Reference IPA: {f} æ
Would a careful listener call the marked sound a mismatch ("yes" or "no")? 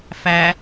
no